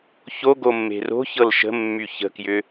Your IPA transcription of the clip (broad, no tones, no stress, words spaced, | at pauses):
çoɡomːe̤ ro̤çɤl ʃə̤mːy çə̤kjʏ